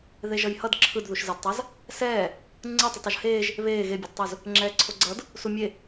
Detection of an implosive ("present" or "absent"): absent